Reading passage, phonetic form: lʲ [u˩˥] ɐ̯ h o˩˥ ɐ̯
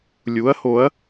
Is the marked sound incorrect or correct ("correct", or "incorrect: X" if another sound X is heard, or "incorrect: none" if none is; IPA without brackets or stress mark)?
correct